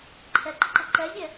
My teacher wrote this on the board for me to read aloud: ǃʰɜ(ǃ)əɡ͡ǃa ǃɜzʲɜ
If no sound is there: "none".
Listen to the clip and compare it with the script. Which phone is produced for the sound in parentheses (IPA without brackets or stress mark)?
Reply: ǃ